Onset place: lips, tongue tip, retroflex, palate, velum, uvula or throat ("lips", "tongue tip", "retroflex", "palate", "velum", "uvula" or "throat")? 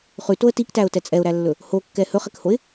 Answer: uvula